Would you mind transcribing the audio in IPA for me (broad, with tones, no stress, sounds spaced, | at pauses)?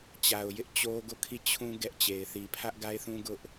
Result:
t͡ɕ a˨ ʊ̯ j ɪ˦ ʔ t͡ɕ o˦ ɡ o˦˨ kʰ i˦˨ t͡ɕʰ ũ˦ ɡ ɛ˦ ʔ t͡ɕ e˨ ɪ̯ θ i˨ pʰ ä˦ ʔ ɡ a˦ ɪ̯ θ ũ˦ ɡ ʊ˦ ʔ